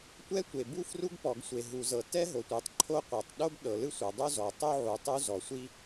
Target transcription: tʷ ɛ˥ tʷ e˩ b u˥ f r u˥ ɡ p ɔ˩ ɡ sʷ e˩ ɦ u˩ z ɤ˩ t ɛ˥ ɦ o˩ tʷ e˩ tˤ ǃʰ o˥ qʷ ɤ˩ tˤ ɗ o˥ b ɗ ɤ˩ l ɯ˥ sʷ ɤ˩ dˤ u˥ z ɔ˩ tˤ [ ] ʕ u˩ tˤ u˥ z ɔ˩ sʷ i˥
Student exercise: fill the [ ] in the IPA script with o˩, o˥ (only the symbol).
o˥